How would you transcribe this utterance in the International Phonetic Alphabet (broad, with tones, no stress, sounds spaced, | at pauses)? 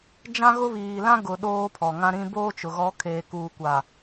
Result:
d͡ʒ ã˦ ɣ ʊ˦ β iː˨ l ã˦ ɡ ʊ˨ ɗ oː˦ pʰ ɔ˨ ŋ ã˦ ɾ ĩ˦ b oː˦ t͡ʃ ʊ˨ ɣ ɔ˨˦ kʰ eː˨ k uː˨ kʷ a˨